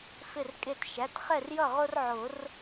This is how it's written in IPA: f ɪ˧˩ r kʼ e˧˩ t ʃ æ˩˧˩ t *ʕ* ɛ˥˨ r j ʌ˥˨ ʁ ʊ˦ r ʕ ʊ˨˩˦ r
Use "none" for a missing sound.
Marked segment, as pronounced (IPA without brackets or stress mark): χ